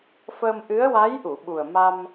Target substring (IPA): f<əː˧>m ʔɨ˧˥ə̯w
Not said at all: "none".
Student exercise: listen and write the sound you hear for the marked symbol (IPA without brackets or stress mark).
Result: əː˧